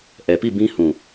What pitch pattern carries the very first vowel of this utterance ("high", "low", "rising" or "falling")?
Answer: low